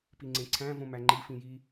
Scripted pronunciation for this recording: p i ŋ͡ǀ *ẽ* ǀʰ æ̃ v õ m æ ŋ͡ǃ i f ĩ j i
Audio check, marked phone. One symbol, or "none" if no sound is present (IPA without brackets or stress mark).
ẽ